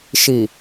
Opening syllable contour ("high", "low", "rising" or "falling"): low